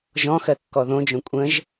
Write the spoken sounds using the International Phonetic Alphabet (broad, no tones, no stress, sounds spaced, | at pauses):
ʒ ɔ̃ x ɜ kː ɔ ð õ d͡ʒ õ kʷʼ ə̃ ʒ